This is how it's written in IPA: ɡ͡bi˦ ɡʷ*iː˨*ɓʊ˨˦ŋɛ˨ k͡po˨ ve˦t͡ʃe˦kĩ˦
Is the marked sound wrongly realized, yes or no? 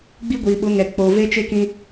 no